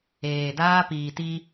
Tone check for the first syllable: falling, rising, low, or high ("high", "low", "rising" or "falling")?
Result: low